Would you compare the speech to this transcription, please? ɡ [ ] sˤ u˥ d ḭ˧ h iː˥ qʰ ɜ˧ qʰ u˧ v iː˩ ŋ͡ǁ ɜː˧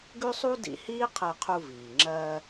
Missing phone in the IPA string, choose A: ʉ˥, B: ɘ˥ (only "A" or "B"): A